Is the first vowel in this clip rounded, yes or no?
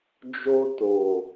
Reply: yes